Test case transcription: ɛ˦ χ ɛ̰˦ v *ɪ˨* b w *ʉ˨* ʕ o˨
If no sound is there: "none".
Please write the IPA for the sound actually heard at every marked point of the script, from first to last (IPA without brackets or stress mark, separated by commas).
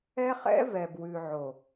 ɛ˨, ʉ˨